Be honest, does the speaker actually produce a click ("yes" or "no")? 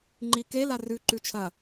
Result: yes